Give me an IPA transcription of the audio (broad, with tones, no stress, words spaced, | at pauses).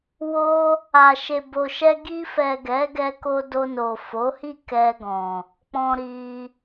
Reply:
wo˦ | a˨ʃe˨bo˨ʃɛ˧ ɡi˧fɛ˨ ɡɛ˨˦ɡɛ˧ko˧ do˧no˨fo˨˦ hi˦˨kɛ˧ɡɔ̃˨ | k͡pɔ̃˧ɾi˧